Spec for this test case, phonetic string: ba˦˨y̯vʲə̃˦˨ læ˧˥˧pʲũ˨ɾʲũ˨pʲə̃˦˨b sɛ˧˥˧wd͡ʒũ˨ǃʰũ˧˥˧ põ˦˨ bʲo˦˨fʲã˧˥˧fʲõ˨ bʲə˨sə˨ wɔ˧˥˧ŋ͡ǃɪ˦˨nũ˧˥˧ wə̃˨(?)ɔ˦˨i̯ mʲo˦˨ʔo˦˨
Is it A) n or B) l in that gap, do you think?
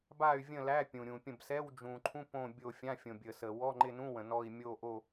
A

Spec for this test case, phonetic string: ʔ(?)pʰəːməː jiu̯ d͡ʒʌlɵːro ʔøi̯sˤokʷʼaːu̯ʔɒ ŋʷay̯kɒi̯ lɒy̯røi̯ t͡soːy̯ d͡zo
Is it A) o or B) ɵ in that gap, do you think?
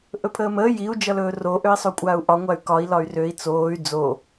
B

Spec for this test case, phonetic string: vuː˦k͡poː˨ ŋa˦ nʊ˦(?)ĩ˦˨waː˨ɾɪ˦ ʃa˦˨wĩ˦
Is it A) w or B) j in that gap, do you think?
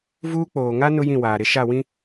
B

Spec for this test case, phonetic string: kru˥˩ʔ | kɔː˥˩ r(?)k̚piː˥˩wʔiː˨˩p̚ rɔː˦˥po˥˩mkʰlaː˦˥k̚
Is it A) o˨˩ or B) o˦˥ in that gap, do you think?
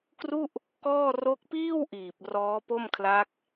B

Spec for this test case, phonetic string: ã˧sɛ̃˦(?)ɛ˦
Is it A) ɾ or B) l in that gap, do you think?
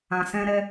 A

